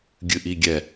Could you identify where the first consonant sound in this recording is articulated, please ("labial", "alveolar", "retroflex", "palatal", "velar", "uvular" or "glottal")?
velar